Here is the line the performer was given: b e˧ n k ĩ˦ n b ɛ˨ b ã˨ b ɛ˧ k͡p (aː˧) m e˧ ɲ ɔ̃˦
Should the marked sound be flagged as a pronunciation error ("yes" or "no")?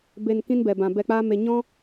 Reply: yes